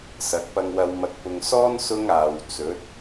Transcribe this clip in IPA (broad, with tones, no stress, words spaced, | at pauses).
sɐ˨˥k̚pɐ˧ŋwɐ˧w mɐ˨k̚pʊ˨ŋsɔː˥n sʊ˥ŋaː˨w t͡sɵ˨˥t̚